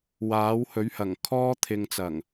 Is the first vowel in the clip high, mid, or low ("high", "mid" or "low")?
low